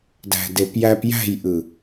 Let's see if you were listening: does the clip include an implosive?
no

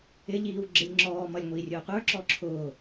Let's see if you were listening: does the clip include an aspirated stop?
yes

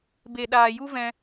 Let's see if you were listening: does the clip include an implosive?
yes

